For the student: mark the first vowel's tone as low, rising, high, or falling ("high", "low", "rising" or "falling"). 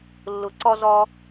low